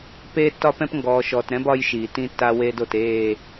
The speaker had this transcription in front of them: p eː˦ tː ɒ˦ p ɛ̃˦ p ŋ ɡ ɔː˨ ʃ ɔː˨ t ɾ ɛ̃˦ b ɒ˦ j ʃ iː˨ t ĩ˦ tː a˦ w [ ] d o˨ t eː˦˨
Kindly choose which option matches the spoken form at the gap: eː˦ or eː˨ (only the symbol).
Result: eː˦